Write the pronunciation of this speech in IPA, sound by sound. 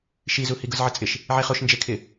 ʃizuhi ɡʊzʕɪt͡sʼɪʃ | ʕeχoʃ nd͡ʒekʰɪ

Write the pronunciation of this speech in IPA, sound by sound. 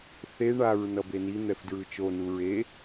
θe ɳaɹ nʌbeni n̪ɛfdɹɯt͡ʃo nuɹe

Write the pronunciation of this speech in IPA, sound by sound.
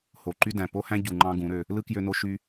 ho˨ǃy˦dæ̃˨ po˦hæ̃˦ ɟu˨ŋ͡ǃɑ̃˧ ɡũ˨˦ɾø˧ | lɯ˦ kjø˧no˧ ʃy˦

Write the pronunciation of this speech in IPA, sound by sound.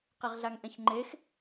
qiʁɮaŋʔɛ̃çŋ͡ǃex

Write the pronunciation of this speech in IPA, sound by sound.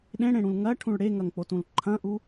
ɗẽɽẽɽũl ŋɐʈʰũɭ ɽeŋɐŋk͡potũl ǃʰɐ̃ʔu

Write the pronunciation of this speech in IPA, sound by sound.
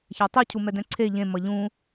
çɛtˤi cʰumɛdɛ̃ǀʰe ʎẽ mʌʎũ

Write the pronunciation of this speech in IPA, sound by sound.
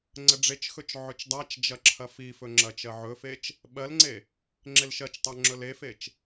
ŋ͡ǀəɖ͡ʐet͡ʃxɵt͡ʃ ʕɵt͡ʃdˤat͡ʃd͡ʒɐ ǁʰɐfifɵ ŋ͡ǁɐt͡ʃɜʕɵfet͡ʃ | ɓɜlŋ͡ǀe | ŋ͡ǁelʃɜt͡ʃtˤa ŋ͡ǁɵlefet͡ʃ

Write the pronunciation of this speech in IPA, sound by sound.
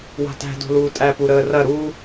wa̤tæ̤do̤luː tʼæpuɾəːrɐ ɾu

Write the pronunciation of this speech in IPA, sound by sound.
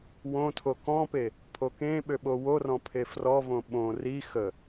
wõtʰo kɔ̃pe | pʰokẽɓø ɓoworɔ̃ pʰefrɔvõ ɓõ ri xə

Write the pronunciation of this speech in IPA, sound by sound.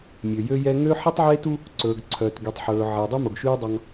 mʲø˨jø˦jɛ˦ ŋø˦ħi˦tˤʕeː˦tu˦ | ǀɵː˨ɡǀʰœ˨tɡy˨tˤ ħɵː˨ʕe˨ dˤʉ˦mo˨ɡʃyː˦ dˤɑ˦ŋ

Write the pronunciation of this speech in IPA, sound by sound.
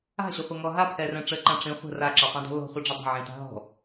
a̤ɕʏχʷə ŋɔɦapʰɛrɛ̃ ʈ͡ʂəǃã ʈ͡ʂĩ χʷə̤ raǁɛtˤɛ̃ dɔ̤lɔ̤χʷɛɖ͡ʐə dˤə̤ ʕĩta̤ɦɔ̤

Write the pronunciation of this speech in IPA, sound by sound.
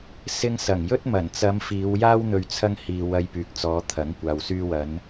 sɪ˧ŋsɐ˨˩ŋjɵ˥t̚ mɐ˨˩nt͡sɐ˨˧m fiː˨˧wjaː˥w n̪ɵ˨ɥt͡sʰɐ˧ŋ hiː˨ wɐ˧jpyː˨k̚t͡sɔː˨˧ t̪ʰɐ˨˥ŋkʷaː˨w syː˧wɐ˨˧n

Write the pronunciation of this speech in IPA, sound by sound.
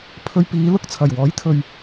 pʰɵ˧ɥpiː˨˧lʊ˥k̚t͡sʰɐ˨˩j wɔː˨˥jt̪ʰɵ˨ɥ

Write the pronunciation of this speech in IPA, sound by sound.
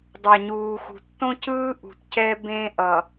dˤa˨ɲuː˨xṳ˨ tːõ˦cɯː˦ ʔṳ˨tcɛ˦ bẽ˦ ʔʌ˨

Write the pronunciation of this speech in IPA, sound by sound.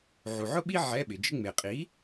ʕu˨ʕʊ˥ɓi˥ ʕɛ˧˥˧ɓɪ˨d͡ʒɪ˥ ŋ͡me˨qʼi˨˥

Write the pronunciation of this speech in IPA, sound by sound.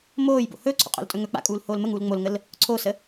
moːjbo̰ hɵːǀʰo̰qʼo̰ltʼɵ ŋɵ k͡pa̰kʼuːlhoːl məŋuːl ŋ͡molŋəl | ǀʰosə

